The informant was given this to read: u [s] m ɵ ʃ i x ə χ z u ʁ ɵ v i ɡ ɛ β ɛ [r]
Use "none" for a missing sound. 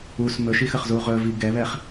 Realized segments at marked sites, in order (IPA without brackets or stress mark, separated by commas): s, χ